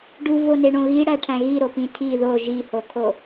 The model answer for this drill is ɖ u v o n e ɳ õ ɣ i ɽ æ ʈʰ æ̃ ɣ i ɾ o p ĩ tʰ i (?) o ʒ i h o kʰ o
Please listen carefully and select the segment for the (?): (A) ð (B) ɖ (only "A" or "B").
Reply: A